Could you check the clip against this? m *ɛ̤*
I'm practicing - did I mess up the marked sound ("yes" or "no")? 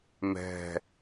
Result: no